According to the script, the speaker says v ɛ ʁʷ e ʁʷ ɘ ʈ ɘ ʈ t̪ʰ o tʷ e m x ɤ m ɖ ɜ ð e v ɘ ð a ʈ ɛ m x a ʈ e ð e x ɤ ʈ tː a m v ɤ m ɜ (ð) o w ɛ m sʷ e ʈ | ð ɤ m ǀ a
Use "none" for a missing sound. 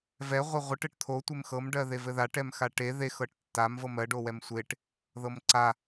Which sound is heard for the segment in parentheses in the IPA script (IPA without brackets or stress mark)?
ɖ